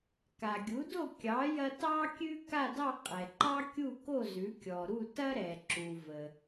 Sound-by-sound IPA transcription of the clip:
k a˩ ɡʲ u˩˥ d o˥˩ kʲ ɑ˩˥ j ɐ˧ t ɑ˧ kʲ ʉ˧ k a˥˩ d ɑ˥˩ qʼ ɛ˩ ǃ ɑ˥ kʲ u˥˩ k o˥˩ z ʉ˩˥ kʲ ɔ˩ ɾ u˥˩ t ɐ˥ ɾ ɛ˩ ǁ u˩ v ə˩

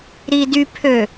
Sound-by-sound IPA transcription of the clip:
ɾ i d y pʰ ø

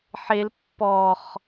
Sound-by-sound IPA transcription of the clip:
ħ e l pː ɔ χ

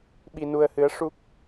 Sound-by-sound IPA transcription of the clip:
ɓ i˧ n u˧ ə̯ h ɨ˧˥ ə̯ ʂ u˦˥ k̚

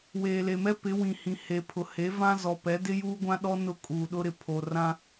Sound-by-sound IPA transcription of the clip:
w eː˨ l e˨ m ɛ˦ p ɪ˨˦ w ĩ˨ h ĩ˨ h e˨ pʰ ʊ˨ h e˨˦ v ã˦ z ɔ˨ p ɛ˨˦ d ɪ˦ j uː˦ ɡʷ ã˦ ɗ ɔ˦ n ʊ˦˨ kʼ uː˨ ɗ ʊ˦ ɾ ɪ˨ pʰ o˨ r ã˦

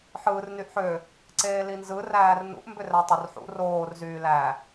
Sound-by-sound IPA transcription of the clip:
ħ ɯː r n y ʔ ħ ø | ǀ eː l i n z ɯ r æː r n ṵ ʔ m b ø r æ tˤ ø r ħ ṵ r oː r z yː l æ

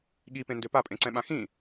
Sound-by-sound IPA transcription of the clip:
ɠ i p ẽ n d ø p a pʼ ẽ ǀ ɛ̃ ɓ ã x ĩ

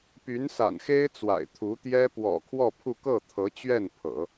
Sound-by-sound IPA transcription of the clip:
p y˧˥ n s a̰˨˩ n x e˥ ɪ̯ t͡s w a̰˨˩ ɪ̯ t̪ʰ u˧˥ t̪ j ɛ˥ p w ɔ̰˨˩ kʰ w ɔ˥˧ pʰ u˥˧ k ɤ˥˩ t̪ʰ ɤ˧˥ t͡ɕ ɥ ɛ˥˩ n pʰ ɤ̰˨˩˦

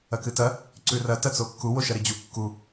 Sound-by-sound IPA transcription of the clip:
ɐ k ɨ t ɐ | ǀ ʉ r ɐ t ɐ t͡s o kː u w o ʃ ɐ ɾ i d͡ʑ u kː u

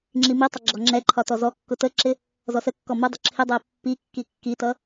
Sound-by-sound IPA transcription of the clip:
ŋ͡ǁ i m i tˤ ə ɡ͡ǁ ɔ ŋ͡ǁ ɛ ǃʰ ɒ t ɔ z ɔ kː ʊ t ə ǁ ɪ | z ɔ s ə kː ɔ m ʊ dˤ ʊ ǁʰ ɪ dˤ ɜ pː i kː i kː i t ʌ

